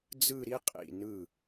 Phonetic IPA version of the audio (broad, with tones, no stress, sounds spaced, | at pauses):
d͡z ɯ˥˧ ɾ i˥ qʼ ḭ˧˩ n ɯ˧˩